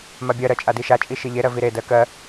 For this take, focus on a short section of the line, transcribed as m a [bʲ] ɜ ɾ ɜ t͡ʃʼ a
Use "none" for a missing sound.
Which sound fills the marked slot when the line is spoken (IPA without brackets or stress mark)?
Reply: bʲ